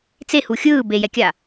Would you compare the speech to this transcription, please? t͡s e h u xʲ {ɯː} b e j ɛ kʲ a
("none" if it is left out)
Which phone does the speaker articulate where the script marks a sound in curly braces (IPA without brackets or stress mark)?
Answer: ɯː